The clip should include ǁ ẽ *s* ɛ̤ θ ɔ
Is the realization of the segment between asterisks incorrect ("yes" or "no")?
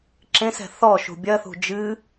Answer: no